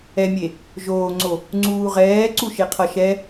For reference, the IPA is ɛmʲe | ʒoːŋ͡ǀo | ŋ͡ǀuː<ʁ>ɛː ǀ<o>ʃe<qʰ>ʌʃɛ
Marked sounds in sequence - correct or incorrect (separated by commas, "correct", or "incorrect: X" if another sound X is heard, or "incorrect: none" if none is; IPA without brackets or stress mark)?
correct, incorrect: u, correct